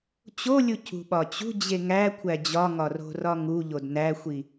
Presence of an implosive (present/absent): present